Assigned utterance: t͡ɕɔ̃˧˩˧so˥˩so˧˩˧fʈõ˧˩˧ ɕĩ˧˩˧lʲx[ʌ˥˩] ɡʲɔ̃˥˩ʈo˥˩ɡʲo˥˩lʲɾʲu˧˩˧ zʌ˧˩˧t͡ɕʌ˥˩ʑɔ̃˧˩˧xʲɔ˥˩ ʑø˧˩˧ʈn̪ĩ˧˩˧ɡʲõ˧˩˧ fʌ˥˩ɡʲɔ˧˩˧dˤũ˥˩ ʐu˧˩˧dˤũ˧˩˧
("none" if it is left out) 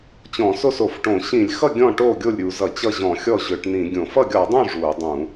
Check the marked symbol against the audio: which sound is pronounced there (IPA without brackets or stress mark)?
ʌ˥˩